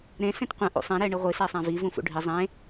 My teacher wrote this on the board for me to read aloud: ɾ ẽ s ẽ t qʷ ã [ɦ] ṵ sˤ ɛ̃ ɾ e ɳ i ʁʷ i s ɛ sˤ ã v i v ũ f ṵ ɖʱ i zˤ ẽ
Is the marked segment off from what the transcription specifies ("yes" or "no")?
yes